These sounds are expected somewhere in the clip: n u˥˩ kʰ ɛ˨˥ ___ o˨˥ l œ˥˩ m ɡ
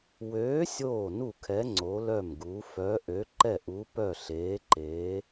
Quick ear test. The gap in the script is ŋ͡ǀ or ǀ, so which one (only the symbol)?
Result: ŋ͡ǀ